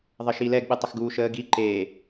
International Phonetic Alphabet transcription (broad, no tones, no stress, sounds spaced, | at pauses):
ðˤ ə ʃ i l ɛ ɡ ɓ ɨ tˤ ə x ɡ uː ʃ əː ɡ i ǃ eː